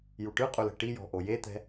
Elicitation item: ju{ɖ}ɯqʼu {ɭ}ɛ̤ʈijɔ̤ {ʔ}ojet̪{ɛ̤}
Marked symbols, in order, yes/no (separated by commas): no, no, yes, yes